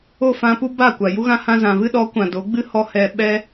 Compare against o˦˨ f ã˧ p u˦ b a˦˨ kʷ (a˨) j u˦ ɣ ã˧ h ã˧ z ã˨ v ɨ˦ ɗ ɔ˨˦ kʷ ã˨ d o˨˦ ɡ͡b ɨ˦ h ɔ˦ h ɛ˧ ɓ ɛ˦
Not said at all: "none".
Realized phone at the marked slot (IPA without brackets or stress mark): a˨